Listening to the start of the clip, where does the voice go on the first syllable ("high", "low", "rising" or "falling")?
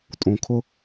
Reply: low